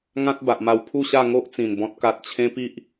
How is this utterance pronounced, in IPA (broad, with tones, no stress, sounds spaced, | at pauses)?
ŋ ã˦ t̚ b a˨ ʔ m a˧ w pʰ u˥˧ ɕ a˥˧ ŋ o˦ ʔ t͡s ĩ˨˩ n b ɔ̃˦ t̚ k a˦ t̚ t͡ɕʰ ẽ˦ p i˦ ʔ